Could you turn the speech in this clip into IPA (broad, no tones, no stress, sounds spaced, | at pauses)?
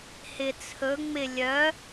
h ɪ t͡sʰ ɵ ŋ͡m ɪ lʲ œ